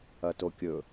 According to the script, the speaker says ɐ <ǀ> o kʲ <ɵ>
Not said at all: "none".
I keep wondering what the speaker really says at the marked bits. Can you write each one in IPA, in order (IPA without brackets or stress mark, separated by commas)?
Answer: t, ɵ